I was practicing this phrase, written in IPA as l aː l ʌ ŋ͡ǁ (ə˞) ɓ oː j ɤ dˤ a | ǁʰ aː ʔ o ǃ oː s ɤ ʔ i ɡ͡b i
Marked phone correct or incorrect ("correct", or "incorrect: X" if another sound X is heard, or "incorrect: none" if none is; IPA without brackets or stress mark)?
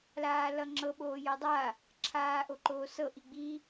incorrect: ɤ